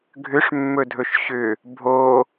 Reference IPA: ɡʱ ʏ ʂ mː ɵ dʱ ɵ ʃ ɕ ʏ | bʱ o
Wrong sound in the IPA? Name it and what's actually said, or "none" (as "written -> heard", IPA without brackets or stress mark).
none